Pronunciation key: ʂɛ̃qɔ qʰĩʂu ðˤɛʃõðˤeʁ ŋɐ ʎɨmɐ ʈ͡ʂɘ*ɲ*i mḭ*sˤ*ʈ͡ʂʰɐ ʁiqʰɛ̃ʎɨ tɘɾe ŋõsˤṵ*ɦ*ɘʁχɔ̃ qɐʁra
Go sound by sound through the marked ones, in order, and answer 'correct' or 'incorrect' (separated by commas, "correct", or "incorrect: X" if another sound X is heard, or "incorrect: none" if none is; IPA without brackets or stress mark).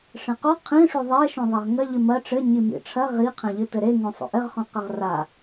correct, incorrect: none, incorrect: ʔ